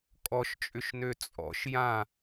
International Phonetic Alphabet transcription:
kʼ ɔ ʃ t͡ʃʼ ʏ ʃ n ø t͡sʼ ɔ̰ ʃ j ã

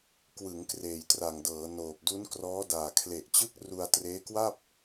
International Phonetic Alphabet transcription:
k w ɯ˩˦ ŋ k r eː˨˩ j t r a˨˩ ŋ d ɤː˩˦ n oː˨˩ p̚ d u˦˥ n k r ɔː˦˥ d aː˨˩ kʰ l e˨˩ ʔ t͡ɕ ɯ˦˥ k̚ r u˧ a̯ t r eː˦˥ k w a˥˩ p̚

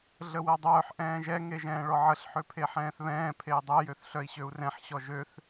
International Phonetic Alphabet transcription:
ɮ ə w ɛ dˤ œː ħ ʔ ɛ̃ː ʒ ɛ ŋ e ʒ ɛ̃ː ɭ ɔ ʕ ə ɬ ħ ø pʰ e ħ ɛ̃ː θ β ɛ̃ː pʰ e i̯ dˤ ɛ j ø θ ɬ œ i̯ ɕ ø u̯ r ɛ̃ ħ ɕ ɔ ʒ ø θ

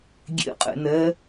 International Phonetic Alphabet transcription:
ɡʲ ḛ qʼ ḛ n ɛː

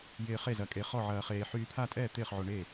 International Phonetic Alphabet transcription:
j ɪː˧ χ e˥˨ z ɐ˧ kʼ e˧ χ ɔ˥˨ ʕ ɐː˧ χ eː˧ ħ yː˧ pʰ a˥˨ tʼ ɛː˥˨ t̪ ɪː˥˨ χ ʕ o˧ ɳ e˥˨

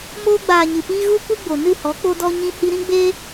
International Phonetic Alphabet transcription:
m oː˧ ɡ͡b aː˨ ɲ ɨ˨ p iː˦ ɣ u˦ kʷ i˦ ɡ͡b o˨ n ɨ˦˨ h ɔ˨˦ k͡p o˦ d ɔ˦ ɲ ĩ˧ h i˧ ɾ ĩ˦ ɡ͡b eː˦

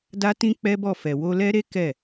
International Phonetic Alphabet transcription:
d a˦ t ĩ˦ k͡p ɛ˦ b ɔ˦˨ f ɛ˨ w o˧ l ɛ˦ ɾ e˦ k ɛ˦˨

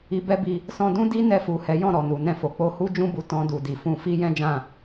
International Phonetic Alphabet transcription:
i˧ b ɛ˦ b i˧ | s ɔ̃˧ d ũ˦ d i˦ n ɛ˧ f u˨ h ɛ˨˦ j ɔ̃˦˨ ɾ ɔ˨ n u˨ n ɛ̃˧ f o˨ k͡p o˧ h u˦ d͡ʒ ũ˦ b u˧ t ɔ̃˦ d u˧ d i˨ f ũ˧ f i˦ j ɛ̃˦ d͡ʒ ã˦˨

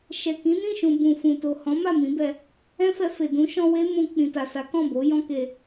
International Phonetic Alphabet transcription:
ʃ ɛ˨ k ĩ˨˦ n ĩ˦˨ ʃ ũ˨ b ũ˨ f ũ˨ t o˨ h ɔ̃˨˦ m a˦˨ m ĩ˨˦ b ɛ˧ | ɛ̃˦ f ɛ˧ f e˨ d ũ˨˦ ʃ ɔ̃˧ w e˦ m ũ˧ k͡p ĩ˨ t a˨ s a˨˦ k ɔ̃˦˨ b o˨˦ j ɔ̃˦ k e˧

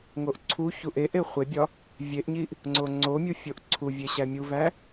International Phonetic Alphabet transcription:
ŋ o ʔ ǀʰ u ç u ʔ e ʔ e χʷ e bʲ ɒ | vʲ e ʔ ɲ i ʔ | ŋ͡ǀ o ŋ͡ǀ o mʲ u fʲ o ʔ ǀʰ u vʲ e ɕ æ mʲ u v æ

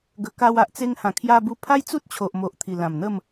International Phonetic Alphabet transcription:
ɡ ə˧ k a˧ w a˨ ʔ t͡s e˧ ŋ h ã˨˩ kʰ j a˧ b u˧ pʰ a˦ j t͡s u˦ t̚ t͡ɕʰ o˨ ʔ m o˨ ʔ t̪ʰ i˨˩ l ã˨˩ m n̪ ə˥˧ m

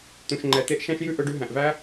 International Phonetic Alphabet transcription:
t̪ ũ˨ ʃ ŋ͡ǃ ɛ˨ t̪ e˦ ʔ ʃ æ̃˦ ʃ j ʉ˦ ʔ ɵ˧ ɖ ʉ˧ ɦ æ̃˨ ʔ v æ˦

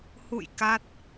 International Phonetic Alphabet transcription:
h ṵ˧˨ j k a˦˥ t̚

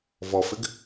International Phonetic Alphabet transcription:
v ɔ f ɪ ɡ

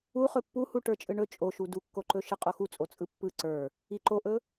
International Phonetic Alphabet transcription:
u χ ɵ pː u h u ʈ ə˞ t͡ʃʼ ɯ ɳ ɵ t͡ʃʼ o ʃ u d u kː o ǃ ɵ ʃ ɯ qʼ o x u t͡sʼ o t͡sʼ ɯ pː ɯ ǀ ə˞ | i ǃ o ʔ ɵ

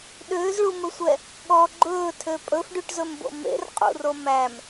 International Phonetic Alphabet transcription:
ɗ øː z ɭ u m ɵ sʷ ɛ | ɠ ɔ ɡ͡ǃ ɵː tʰ ø pʼ ɵ f ɖ y ʈ z ɵ m b o̰ m ḛ r qʼ ṵ r o m æ m

